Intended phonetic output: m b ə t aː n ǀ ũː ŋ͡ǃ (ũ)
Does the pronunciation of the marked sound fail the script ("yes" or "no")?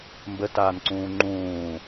yes